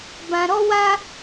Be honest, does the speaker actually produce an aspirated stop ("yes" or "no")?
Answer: no